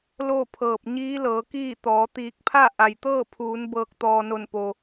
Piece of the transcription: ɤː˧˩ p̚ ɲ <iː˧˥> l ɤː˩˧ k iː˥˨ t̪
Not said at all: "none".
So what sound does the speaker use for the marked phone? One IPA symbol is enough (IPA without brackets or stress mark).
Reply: iː˧˥